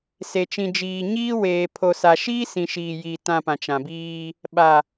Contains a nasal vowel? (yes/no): yes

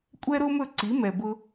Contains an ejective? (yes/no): yes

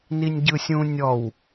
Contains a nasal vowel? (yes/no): yes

